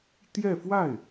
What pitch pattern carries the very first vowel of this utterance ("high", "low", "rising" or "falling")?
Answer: falling